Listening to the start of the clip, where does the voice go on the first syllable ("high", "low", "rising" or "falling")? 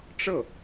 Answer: falling